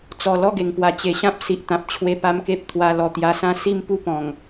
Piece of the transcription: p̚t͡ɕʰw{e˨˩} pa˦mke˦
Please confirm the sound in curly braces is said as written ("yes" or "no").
no